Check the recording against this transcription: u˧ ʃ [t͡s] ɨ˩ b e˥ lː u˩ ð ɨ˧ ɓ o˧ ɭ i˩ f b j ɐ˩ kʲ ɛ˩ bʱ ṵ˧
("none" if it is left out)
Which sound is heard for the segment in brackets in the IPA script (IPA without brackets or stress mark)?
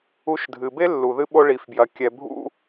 dʱ